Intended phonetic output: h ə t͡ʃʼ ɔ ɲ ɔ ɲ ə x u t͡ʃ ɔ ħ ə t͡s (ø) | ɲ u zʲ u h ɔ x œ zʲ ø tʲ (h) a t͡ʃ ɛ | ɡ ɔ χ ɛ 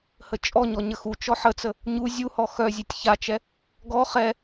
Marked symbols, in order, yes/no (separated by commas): no, no